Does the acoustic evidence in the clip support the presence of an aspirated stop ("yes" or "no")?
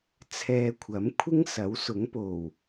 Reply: yes